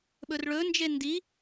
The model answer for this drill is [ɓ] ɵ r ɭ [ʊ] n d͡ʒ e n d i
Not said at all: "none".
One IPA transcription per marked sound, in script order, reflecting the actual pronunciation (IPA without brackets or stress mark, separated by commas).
ɓ, ɵ